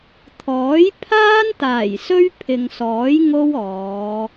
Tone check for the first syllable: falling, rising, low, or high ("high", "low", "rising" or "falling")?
rising